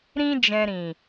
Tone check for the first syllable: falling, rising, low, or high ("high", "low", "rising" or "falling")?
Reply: high